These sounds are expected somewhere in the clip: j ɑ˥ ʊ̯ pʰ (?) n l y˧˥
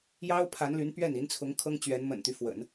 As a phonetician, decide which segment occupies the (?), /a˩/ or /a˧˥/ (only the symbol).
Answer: a˧˥